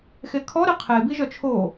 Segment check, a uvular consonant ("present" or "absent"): present